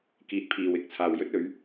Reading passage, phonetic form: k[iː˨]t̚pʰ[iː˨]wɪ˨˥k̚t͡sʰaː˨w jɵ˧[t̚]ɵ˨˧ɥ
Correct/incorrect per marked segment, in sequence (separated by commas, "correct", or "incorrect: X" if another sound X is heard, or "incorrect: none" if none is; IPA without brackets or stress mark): correct, correct, correct